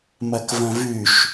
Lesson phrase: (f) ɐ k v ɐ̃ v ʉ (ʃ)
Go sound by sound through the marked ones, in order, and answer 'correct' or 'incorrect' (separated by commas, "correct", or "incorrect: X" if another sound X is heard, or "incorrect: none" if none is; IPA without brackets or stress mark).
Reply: incorrect: m, correct